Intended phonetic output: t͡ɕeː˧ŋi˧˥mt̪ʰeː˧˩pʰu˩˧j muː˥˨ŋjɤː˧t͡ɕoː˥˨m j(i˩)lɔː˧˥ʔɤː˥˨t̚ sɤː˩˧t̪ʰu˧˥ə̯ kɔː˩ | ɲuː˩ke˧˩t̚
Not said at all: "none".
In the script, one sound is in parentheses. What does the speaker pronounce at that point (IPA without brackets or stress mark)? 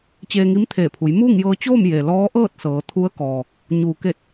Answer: e˩